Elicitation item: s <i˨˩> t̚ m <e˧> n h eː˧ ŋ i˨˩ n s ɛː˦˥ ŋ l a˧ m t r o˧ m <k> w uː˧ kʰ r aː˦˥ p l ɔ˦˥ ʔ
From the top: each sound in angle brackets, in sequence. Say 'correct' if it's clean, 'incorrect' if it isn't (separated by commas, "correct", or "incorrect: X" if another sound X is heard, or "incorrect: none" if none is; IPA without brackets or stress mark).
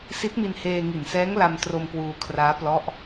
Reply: incorrect: i˦˥, incorrect: i˧, correct